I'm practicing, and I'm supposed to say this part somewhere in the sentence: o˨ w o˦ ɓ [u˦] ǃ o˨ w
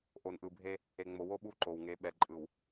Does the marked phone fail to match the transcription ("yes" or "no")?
no